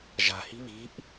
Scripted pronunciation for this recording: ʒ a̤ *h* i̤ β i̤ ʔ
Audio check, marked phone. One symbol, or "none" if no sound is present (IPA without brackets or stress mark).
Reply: h